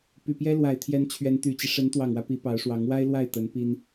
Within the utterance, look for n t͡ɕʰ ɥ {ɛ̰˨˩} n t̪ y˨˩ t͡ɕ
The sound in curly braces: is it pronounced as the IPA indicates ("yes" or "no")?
no